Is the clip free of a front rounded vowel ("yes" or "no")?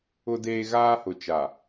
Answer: yes